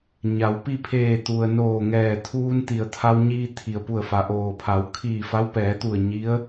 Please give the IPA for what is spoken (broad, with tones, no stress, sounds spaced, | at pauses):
ɲ a˩˧ w p i˥˨ pʰ eː˧˩ t̪ u˩ ə̯ n oː˧˩ ŋ ɛː˧˩ t̪ʰ uː˧ n t̪ i˩ ə̯ t̪ʰ a˧ w ɲ iː˧ t̪ʰ i˩ ə̯ p u˧˩ ə̯ f a˩ ʔ oː˩ pʰ a˩˧ w kʰ iː˧˩ f a˧˥ w p ɛː˩˧ t̪ u˧˩ ə̯ ɲ i˧˥ ə̯